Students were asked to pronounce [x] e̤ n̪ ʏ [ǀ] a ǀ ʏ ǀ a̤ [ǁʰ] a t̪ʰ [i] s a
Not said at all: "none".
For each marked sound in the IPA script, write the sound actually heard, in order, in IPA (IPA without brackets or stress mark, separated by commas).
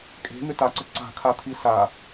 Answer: kʼ, t, kʰ, i